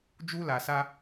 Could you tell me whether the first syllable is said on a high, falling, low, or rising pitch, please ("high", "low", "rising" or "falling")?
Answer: high